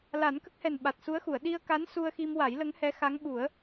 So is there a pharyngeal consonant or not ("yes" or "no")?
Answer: no